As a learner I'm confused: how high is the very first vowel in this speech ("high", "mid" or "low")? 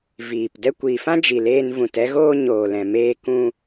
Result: high